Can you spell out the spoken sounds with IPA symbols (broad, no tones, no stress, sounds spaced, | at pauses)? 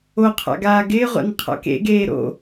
o qʰ a̰ ɡ aː ɡ ɪː ʁʷ a̰ n qʰ a̰ k ḛ ɡ eː ɾ o̰